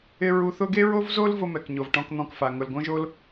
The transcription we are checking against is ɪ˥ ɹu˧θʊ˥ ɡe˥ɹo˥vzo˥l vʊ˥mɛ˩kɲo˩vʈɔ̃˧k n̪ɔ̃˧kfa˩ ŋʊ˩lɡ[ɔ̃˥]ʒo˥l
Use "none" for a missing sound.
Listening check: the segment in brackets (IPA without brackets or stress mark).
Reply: õ˥